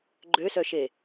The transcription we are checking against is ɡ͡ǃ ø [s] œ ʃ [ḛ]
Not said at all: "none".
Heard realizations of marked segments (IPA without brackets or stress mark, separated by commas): s, e